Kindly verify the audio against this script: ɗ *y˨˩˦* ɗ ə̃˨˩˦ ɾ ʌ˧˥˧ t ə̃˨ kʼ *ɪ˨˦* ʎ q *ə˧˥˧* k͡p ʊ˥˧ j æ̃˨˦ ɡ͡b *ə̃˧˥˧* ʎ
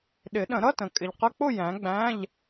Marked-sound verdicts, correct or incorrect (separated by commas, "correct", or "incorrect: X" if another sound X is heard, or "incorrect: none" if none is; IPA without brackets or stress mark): incorrect: ɪ˨˩˦, incorrect: ɪ˨, correct, incorrect: æ̃˧˥˧